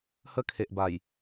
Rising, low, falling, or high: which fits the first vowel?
high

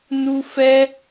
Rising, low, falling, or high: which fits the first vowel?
high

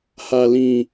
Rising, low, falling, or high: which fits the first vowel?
low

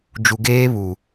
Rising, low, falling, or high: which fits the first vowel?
low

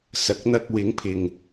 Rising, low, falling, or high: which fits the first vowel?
low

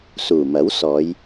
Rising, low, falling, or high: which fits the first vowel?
low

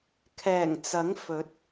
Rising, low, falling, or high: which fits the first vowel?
low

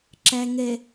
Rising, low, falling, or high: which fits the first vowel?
low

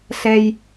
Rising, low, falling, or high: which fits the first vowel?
low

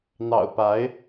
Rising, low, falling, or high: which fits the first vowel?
low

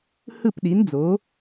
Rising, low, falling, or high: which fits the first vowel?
falling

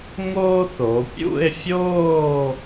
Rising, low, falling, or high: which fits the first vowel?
high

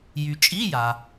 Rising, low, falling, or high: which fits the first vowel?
low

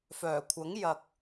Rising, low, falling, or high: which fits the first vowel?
low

